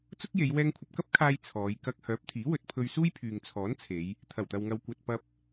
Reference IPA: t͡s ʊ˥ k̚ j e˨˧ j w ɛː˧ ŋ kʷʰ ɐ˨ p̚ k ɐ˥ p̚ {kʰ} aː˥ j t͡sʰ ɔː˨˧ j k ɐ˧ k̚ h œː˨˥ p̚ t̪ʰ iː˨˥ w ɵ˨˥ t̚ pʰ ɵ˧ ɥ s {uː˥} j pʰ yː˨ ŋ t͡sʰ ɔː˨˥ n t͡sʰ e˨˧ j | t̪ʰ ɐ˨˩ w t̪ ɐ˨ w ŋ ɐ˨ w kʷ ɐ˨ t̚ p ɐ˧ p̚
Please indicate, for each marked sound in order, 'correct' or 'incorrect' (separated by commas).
correct, correct